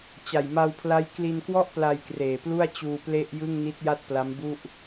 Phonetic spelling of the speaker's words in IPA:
t͡ɕ a˨˩ j m a˧ w pʰ l a˦˥ j k l i˧ n k w ɔ˥˩ ʔ p l a˧ j k r eː˨˩ p l u˥˩ a̯ t͡ɕ uː˧ p l e˥˩ ʔ j ɯ˥˩ ŋ n i˦˥ t̚ j a˥˩ t̚ p l a˦˥ m b u˥˩ ʔ

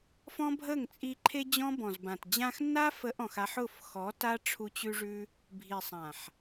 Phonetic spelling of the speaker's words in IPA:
f ɔ̃˦ bʱ ə˦˨ ŋ t͡sʼ i˧ ǃʰ e˦ d͡ʑ ɔ̃˦ b ɔ̃˨ z b ã˨ t d͡ʑ ã˧ x nː a˦ f ə˨˦ ʔ ɔ̃˨ x a˧ ħ ʊ˦˨ f x ɔ˨˦ t a˦ ʈ͡ʂʰ u˧ t͡ɕ ʉ˦ ʐ ʉ˦ | bʱ i˨ sˤ ã˨ ħ

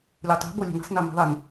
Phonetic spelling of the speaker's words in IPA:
lʲ u tˤ i̤ b o lʲ e̤ n i̤ sˤ n i m i̤ ðˤ i n

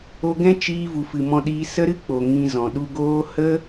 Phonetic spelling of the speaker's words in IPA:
o˧ ɡ ɛ̃˦ t͡ʃ iː˧ v u˨ f ɨ˨ m ɔ̃˧ ɗ iː˧ s ə˦ ɾ ɨ˦ k͡p o˨ ŋ ĩ˧ z ɔ̃˨ ɗ u˧ ɡ oː˦ h ə˦

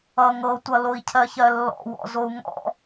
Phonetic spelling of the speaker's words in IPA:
ʌ ŋ ɤ tʷ ʌ l o i̯ cʰ ɜ ç ɜ lː ɔ̰ w ɔ̰ z o u̯ ŋ ɔ̰

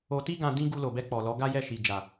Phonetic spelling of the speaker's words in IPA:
o˧ t i˦ ɡ ã˧ d ĩ˦ ɡ u˧ l o˨ b ɛ˧ k͡p ɔ˨ l ɔ˨˦ ɡ a˦ j ɛ˦˨ ʃ i˨ d͡ʒ a˨

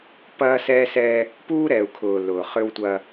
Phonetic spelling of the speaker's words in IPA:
p ɐː˦ s ɛː˦ s ɛ˦ | p uː˦ ɾ ɛː˨ u̯ kʰ ʊː˨ l ʊː˨ χ ʏ˦ w tʷ ɐ˦

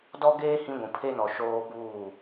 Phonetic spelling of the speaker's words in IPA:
d ɔ˦ ɡ eː˦ h ĩ˦ ɡʷ ũ˨ pʰ e˦ n ɔ˨ ʃ oː˦ b uː˦˨

